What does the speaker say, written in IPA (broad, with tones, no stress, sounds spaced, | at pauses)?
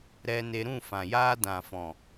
ɾ ɛ˧ n e˧ ɾ ũ˦˨ f ã˨ j aː˦ d ã˨ f ɔ̃˨